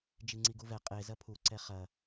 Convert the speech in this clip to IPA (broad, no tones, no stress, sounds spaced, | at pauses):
d͡ʒ i ŋ͡ǀ i ɡ u v ɛ qʼ e z ɐ pʰ u ǀ ɛ χ ɐ